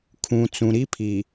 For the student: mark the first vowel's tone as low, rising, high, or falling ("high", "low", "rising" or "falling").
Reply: low